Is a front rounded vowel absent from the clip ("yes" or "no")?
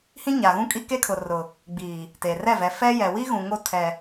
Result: yes